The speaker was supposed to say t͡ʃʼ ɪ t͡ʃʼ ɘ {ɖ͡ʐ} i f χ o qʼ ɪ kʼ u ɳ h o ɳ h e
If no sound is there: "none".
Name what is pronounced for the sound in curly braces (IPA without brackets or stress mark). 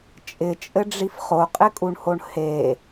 ɖ͡ʐ